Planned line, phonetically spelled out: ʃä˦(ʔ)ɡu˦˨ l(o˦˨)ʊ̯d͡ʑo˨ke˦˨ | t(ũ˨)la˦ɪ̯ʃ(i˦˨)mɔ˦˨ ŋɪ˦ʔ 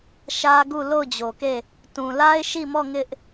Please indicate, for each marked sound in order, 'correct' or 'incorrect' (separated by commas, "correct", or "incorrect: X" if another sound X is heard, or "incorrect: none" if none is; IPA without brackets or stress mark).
incorrect: none, correct, correct, correct